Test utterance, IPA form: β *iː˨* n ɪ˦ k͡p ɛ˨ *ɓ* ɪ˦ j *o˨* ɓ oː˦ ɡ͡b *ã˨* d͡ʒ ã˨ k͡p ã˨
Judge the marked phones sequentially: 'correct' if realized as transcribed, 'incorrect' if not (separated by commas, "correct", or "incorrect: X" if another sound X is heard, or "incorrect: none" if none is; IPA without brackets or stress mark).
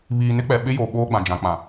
correct, correct, correct, correct